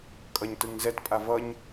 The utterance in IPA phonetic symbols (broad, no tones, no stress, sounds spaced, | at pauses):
kʼ ʌ ɲ t ɯ ŋ z ɛ t pʼ a v ʌ ɲ